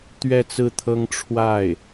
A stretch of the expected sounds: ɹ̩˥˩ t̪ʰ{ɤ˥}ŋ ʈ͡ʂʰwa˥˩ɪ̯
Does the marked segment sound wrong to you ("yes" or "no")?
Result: no